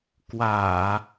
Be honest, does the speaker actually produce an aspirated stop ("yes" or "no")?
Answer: no